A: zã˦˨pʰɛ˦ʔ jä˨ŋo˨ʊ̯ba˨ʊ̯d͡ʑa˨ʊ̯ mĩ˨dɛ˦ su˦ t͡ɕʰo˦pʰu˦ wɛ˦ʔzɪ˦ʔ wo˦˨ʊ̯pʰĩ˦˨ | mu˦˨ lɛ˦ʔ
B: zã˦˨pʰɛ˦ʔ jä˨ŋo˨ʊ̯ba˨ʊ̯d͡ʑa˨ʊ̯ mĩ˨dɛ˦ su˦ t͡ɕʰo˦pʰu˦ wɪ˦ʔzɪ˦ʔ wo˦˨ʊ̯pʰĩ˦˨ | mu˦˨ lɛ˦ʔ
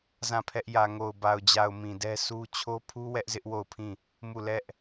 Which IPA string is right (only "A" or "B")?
A